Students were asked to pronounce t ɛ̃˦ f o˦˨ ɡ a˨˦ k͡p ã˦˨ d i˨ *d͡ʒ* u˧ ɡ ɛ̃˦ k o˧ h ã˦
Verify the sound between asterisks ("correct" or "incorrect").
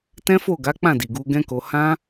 incorrect